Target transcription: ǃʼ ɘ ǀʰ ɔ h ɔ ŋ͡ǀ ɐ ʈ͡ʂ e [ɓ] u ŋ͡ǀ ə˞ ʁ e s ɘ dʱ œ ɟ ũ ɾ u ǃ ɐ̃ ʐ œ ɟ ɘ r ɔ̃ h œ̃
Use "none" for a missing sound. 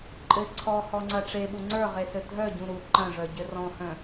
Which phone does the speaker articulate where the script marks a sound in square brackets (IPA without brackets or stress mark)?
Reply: ɓ